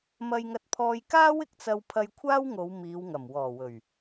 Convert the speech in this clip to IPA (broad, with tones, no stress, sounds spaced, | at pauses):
m ɐ˧ j ŋ ɐ˧ t̚ pʰ ɔː˧ j k aː˥ w ɪ˨ k̚ t͡s ɐ˧ w pʰ ɐ˧ j kʷʰ aː˥ w ŋ o˨˧ w m iː˨˧ w ŋ ɐ˨˩ m w ɔː˨˩ w ɵ˨˩ ɥ